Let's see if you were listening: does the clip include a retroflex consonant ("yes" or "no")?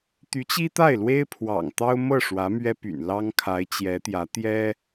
yes